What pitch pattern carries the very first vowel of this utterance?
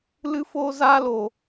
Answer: high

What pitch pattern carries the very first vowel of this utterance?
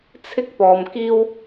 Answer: high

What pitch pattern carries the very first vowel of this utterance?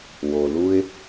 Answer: low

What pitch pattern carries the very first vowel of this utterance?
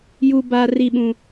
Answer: high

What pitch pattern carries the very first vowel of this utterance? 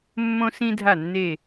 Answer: high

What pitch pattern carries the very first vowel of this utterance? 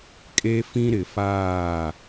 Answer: high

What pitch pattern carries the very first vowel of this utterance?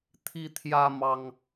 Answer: high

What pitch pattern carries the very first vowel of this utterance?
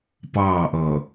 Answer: falling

